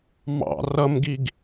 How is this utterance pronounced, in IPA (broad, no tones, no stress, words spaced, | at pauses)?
mɑ̰ rʌmɡiɡ